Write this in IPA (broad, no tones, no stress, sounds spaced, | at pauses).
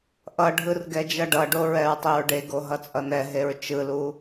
ʔ ʌ ɖʱ ɯ r ɡ ɛ d͡ʒ ʌ ɖ ʌ ɖ o ɹ ɛ ɹ tˤ e ɹ ɖ e ɡ o ɦ ʌ t͡sʼ ʌ n ɛ ɦ e ɹ t͡ʃ ɯ l u